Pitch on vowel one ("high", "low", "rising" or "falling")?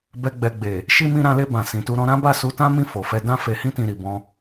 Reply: low